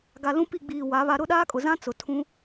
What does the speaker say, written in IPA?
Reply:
ɡ a˨ l ũ˦ p i˦˨ ɡ͡b iː˨ w a˨˦ β a˦ ɾ ʊ˦ ɗ aː˦ kʼ ʊ˨ z ã˦ t͡s ʊ˨ tʰ ũ˦

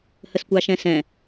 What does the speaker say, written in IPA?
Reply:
h ə s kʷ ɑ ʃ ɛ̃ s ɛ̃

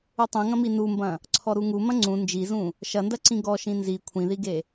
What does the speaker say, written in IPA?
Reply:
u tˤ ũ ŋ ɐ̃ m i n u m b ɐ̃ | ǀʰ ɔ ɾ u ŋ u m ɐ̃ ŋ͡ǀ ũ n d͡ʒ i z ũ | ʃ ɐ n d ɐ ǀ ĩ ɡ ɔ ʃ ĩ n z i kʷʰ ĩ ð i ɡ e

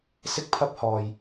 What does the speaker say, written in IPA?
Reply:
s ɪ˥ k̚ pʰ ɐ˥ p̚ h ɔː˧ j

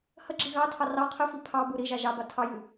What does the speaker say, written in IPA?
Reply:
h ə ɡ͡ǁ i ɣ ɑ tʰ ɑ r ɑ qʰ ɨ f i pʰ ɑ b u ɾ i ʒ a ʒ ɑ b a tʰ ɑ j ɨ

